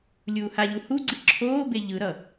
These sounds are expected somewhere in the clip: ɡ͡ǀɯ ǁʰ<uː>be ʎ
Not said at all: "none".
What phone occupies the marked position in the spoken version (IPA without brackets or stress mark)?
oː